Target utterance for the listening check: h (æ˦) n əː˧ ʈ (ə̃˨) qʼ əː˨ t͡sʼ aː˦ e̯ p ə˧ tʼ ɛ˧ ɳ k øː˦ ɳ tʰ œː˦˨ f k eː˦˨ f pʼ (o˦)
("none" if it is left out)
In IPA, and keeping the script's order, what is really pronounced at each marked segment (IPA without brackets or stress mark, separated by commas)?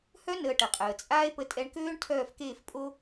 œ˦, ə˨, o˦